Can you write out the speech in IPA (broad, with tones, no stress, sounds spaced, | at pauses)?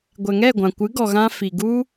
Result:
ɡʷ ɛ˨ ŋ ɛ˦˨ ɡʷ ã˨ kʷ ɨ˨˦ ɡ ɔ˨ ɣ ã˧ f i˨ ɡ u˦